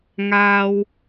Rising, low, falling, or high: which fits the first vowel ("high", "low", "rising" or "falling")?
low